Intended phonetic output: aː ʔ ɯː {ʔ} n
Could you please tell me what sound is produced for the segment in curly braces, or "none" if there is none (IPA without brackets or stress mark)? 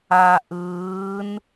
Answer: none